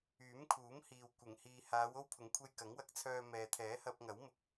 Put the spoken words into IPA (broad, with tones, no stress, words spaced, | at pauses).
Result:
yː˨˥mkʰuː˨˥mhiː˨w kʷɪ˨˩ŋ hiː˨haː˨˧w o˥wpʰʊ˨˥ŋkʷʰe˧j kɐ˨˥ŋwɐ˨˥k̚t͡sʰœː˧ mɛː˨t̪ʰɛː˨˥hɐ˧p̚ ŋɐ˨˥wmʊ˧k̚